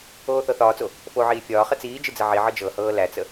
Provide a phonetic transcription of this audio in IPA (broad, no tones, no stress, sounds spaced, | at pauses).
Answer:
oː θ ɤ θ ɒː t͡s o | f o ʕ iː fʲ ɒː χ ə t͡s iː d͡ʒ ɨ d͡z ə ʕ i ʕ ɤ d͡ʒ ɤ h ɤː l æ t͡s ə